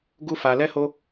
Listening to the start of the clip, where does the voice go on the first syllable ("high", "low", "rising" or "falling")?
high